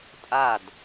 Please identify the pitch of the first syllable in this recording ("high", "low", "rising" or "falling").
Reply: falling